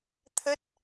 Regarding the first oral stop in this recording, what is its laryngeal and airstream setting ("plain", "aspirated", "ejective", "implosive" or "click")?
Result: aspirated